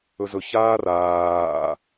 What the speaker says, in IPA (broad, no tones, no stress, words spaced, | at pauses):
ɵzɵç aːraː